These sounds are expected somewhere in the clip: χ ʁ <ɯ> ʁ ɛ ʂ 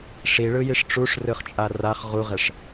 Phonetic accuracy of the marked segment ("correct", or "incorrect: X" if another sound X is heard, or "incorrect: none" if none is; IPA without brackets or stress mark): incorrect: u